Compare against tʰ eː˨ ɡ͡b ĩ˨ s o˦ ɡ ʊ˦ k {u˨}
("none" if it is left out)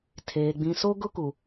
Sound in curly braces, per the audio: u˨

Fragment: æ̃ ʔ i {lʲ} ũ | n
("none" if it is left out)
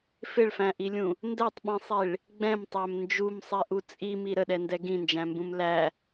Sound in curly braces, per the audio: lʲ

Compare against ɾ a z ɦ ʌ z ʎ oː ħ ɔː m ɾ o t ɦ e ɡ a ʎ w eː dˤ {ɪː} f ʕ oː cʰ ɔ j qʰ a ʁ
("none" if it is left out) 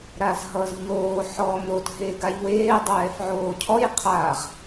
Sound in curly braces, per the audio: ɛː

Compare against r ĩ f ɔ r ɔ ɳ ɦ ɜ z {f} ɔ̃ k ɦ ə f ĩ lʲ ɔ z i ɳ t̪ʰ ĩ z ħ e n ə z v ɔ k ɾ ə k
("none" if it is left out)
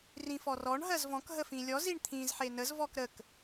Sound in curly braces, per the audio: v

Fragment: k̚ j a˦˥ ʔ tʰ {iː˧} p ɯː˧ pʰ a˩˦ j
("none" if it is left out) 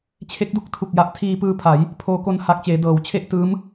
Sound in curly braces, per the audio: iː˧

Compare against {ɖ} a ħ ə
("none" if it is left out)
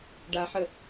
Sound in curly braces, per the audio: ɖ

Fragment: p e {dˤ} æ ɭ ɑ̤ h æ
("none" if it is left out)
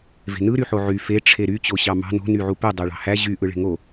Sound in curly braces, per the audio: dˤ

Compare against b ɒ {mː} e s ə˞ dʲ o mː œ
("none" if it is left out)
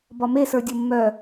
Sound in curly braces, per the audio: m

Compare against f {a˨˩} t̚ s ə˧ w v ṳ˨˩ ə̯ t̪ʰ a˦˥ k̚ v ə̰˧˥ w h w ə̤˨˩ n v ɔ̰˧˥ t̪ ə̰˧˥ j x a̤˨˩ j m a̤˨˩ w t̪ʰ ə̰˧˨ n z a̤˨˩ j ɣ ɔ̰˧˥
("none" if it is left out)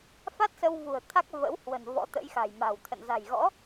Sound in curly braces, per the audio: a˦˥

